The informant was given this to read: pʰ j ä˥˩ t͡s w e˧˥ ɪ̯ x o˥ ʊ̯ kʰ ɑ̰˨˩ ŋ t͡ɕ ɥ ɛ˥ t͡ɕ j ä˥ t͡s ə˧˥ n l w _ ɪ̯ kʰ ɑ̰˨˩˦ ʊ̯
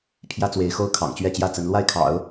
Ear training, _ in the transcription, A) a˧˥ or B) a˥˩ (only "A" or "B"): B